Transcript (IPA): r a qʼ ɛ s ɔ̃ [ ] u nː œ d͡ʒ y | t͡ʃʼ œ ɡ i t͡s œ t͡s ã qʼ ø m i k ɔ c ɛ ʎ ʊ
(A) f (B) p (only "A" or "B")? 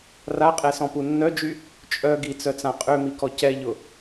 B